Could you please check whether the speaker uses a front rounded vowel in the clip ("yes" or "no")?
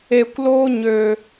yes